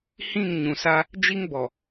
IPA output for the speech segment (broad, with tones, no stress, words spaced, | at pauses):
hĩ˦˨ŋ ɲũ˨sa˦ | d͡ʒi˦ŋbɔ˨